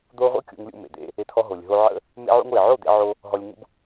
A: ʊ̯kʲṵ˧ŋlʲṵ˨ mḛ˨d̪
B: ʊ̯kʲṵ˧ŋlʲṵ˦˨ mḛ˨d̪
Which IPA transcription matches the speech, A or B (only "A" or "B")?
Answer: B